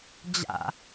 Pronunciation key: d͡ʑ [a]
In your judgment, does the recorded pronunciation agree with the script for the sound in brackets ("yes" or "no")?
no